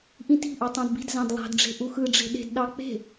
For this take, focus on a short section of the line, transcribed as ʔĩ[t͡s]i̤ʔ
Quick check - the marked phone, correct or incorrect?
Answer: incorrect